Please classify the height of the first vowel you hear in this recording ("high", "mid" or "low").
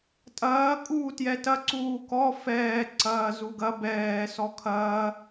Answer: low